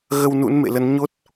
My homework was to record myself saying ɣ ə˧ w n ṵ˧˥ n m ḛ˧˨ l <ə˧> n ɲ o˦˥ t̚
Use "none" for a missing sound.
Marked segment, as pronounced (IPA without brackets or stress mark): ə˨˦